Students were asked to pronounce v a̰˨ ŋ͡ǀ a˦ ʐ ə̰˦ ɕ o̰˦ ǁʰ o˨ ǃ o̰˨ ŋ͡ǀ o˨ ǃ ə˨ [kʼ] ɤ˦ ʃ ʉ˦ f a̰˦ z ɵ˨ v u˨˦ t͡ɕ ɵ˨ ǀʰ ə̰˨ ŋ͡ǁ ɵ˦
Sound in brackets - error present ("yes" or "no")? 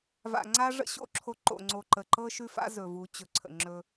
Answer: yes